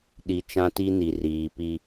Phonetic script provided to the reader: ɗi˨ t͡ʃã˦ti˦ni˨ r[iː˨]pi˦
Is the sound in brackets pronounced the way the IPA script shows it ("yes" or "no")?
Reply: yes